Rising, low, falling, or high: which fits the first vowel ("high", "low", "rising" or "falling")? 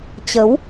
rising